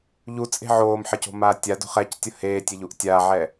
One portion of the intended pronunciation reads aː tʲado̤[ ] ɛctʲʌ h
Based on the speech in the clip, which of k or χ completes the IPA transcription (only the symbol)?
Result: χ